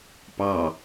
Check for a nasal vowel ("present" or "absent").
absent